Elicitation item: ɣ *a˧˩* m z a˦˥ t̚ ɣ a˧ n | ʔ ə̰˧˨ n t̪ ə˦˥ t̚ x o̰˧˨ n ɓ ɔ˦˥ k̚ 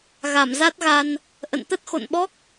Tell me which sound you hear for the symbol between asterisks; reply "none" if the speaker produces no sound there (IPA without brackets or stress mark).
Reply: a˧˩